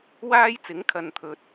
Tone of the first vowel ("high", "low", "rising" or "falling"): high